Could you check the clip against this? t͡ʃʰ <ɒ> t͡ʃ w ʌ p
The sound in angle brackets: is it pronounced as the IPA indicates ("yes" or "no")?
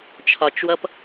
yes